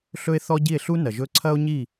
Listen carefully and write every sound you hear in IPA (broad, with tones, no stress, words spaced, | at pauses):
ɬɵ˥e̯θɔ˥ ɟi˥˩e̯ɬu˥ nɐ˩ʒɵ˥ ǀʰɐ˥o̯ɲi˥˩